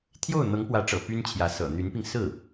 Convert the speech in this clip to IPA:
t̪ʰjo˥˩ʊ̯n̪ɤ˧˥ŋpwä˧˥ʈ͡ʂɤ̰˨˩ py˥nt͡ɕʰjä˧˥ sɤ̰˨˩n̪y˧˥npi˧ŋ sɹ̩˥˩

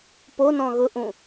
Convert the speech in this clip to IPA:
ponɔ̃ ɣʊʔũ

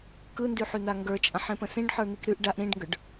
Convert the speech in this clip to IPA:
kɯndyħyn̪a ŋɡə˞t͡ʃʼãħẽpə̃ sĩɖħə˞n̪ik ɾyʔ ɖaʔ ɾĩɖŋɡə˞ɖ

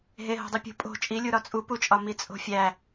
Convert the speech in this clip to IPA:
ɦe ɦo̤dˤipʲṳ pʼo̤ t͡ʃʼilʲu ɾɒt͡sʼuput͡ʃʼɒ mit͡sʼo̤fʲæ

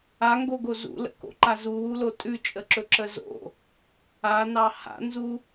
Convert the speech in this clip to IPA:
aŋɡoɡo zṵlə̰ko̰ǃa zuwulo tʼʉt͡ʃʼəǁɵǁə zo̰ | anɑ ha̰nzu

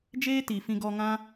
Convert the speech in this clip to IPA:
d͡ʒeː˦ti˨fĩ˧ɡɔ˧ ŋã˦

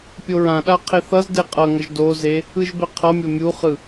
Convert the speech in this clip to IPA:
pʲoɹãɗa qʰeθʌzde qʼʌŋʌʒ doze | ɯʒbɛqʰʌmʲo mʲuχɯ

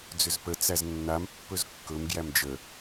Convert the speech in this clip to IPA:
d͡zʏzpə t͡sæznːam pːɵzkːɵm ɡjæmd͡ʒə

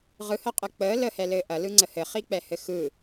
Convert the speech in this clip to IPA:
ʁɯhəqʼɯ k͡pəː ləhɛlɘː ʔɐlɯŋ͡ǀə hɘχik͡pɛhɘ xɯ

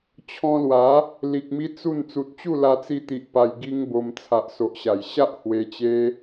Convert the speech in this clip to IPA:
t͡ɕʰɔ̃˧lwa˨˦ | li˨k̚mi˧ t͡su˥˧n t͡su˨t̚t͡ɕu˥˧ la˧t͡si˧t̪i˨ʔ pa˧j ɡi˦ŋbo˧m t͡sʰa˨ʔso˨ʔɕa˨˩jɕa˦ʔ hwe˧t͡ɕe˦

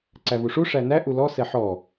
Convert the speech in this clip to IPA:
ǀævuʂu ʂænæ ʔulɔ sɛħɔ

